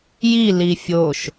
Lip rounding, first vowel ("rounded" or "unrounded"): unrounded